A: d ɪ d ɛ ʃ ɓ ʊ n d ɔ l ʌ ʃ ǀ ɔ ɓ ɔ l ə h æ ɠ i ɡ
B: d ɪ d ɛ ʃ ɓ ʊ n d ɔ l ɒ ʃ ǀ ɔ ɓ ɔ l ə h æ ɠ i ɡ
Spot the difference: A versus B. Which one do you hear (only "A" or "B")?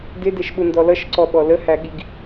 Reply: A